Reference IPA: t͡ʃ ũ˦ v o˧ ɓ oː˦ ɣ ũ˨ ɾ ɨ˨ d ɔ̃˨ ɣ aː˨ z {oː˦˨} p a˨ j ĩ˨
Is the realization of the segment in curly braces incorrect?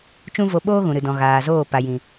no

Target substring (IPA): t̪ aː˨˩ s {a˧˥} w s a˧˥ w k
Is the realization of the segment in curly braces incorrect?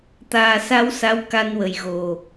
no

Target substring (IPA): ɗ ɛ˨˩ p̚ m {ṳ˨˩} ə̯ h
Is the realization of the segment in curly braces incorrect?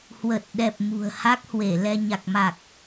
no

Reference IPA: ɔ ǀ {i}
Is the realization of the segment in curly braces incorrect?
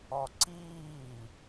yes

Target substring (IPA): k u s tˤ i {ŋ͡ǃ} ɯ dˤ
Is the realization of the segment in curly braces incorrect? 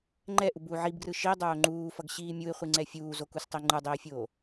no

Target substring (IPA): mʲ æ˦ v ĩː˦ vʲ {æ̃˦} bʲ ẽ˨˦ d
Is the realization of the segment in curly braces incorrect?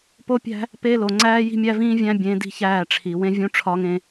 no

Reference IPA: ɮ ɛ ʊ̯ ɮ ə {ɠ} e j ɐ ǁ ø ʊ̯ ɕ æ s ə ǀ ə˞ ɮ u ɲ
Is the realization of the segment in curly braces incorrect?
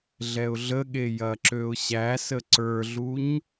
no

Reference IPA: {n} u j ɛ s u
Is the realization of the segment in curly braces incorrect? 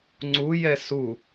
yes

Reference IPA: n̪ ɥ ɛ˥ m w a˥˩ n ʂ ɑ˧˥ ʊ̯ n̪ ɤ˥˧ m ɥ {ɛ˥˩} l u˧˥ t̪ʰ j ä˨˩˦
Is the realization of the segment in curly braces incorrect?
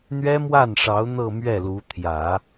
no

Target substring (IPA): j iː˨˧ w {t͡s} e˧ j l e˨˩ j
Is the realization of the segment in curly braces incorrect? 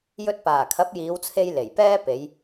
yes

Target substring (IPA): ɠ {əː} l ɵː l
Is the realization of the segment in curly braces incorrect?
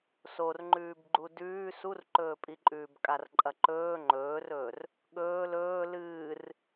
yes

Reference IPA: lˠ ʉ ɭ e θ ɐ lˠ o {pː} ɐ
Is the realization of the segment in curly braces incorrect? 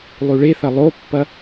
no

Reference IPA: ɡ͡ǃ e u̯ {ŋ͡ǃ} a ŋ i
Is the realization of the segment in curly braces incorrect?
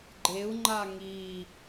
no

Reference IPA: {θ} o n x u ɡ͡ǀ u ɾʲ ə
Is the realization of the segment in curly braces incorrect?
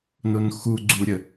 yes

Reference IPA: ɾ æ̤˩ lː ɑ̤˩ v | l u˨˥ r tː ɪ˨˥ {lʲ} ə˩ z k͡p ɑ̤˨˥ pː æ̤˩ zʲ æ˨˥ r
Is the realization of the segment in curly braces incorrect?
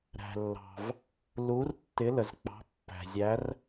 yes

